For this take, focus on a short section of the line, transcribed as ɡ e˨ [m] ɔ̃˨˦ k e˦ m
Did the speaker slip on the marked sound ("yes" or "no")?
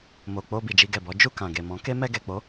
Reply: no